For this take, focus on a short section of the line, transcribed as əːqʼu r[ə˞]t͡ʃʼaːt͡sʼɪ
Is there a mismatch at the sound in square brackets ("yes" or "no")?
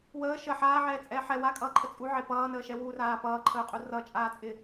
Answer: yes